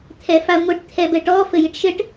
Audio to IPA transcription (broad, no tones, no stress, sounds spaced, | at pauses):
t̪ʰ ɛ f a ŋʷ i ʈ t̪ʰ ɛ b ɛ ʈ ɔ f ɘ j i ʈ ʃ ɘ ʈ